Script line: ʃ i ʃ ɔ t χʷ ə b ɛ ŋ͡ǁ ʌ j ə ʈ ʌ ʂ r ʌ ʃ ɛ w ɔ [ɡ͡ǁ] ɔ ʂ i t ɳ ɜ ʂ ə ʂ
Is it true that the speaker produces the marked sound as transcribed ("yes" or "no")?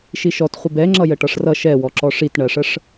no